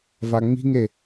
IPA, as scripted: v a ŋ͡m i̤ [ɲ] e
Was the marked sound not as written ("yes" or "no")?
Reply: yes